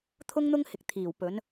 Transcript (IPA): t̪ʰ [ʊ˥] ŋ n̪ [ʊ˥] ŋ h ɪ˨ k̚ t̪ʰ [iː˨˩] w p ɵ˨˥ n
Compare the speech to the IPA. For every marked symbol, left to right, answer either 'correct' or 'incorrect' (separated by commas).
correct, correct, correct